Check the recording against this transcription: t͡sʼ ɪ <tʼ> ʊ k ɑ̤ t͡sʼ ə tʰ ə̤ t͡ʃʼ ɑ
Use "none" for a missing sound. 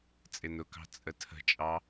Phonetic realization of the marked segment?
n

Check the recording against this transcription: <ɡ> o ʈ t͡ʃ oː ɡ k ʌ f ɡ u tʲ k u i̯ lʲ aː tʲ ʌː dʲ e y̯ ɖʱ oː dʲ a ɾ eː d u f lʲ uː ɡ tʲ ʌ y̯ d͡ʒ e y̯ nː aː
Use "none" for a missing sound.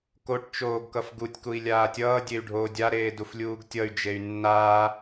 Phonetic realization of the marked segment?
k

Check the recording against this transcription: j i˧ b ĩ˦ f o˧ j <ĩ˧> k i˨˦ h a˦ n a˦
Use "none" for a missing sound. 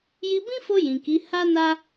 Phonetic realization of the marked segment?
ĩ˨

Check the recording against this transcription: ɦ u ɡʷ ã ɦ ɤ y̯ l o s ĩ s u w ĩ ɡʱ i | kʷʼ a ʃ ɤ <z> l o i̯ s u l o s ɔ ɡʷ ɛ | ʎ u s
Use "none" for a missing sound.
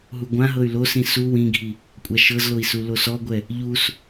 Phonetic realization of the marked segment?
z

